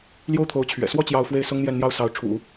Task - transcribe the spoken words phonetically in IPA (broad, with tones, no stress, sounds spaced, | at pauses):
l j o˥ ʊ̯ t̪ʰ o˧˥ ʊ̯ t͡ɕʰ ɥ ɛ̰˨˩ s w ɔ˥˧ t͡ɕ j ɑ˥˧ ʊ̯ f w e˥˩ ɪ̯ s ʊ˥ ŋ n̪ j ɛ˥˧ n n̪ j ɑ˥˩ ʊ̯ s ɑ˧˥ ʊ̯ ʈ͡ʂʰ ṵ˨˩˦